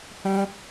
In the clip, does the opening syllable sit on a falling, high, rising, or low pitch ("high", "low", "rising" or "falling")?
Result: high